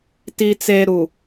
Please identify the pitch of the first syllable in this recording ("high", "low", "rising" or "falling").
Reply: low